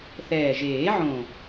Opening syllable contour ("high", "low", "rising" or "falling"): low